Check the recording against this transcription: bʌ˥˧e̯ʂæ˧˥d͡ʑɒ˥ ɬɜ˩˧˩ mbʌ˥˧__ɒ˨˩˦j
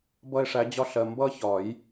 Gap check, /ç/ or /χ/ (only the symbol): ç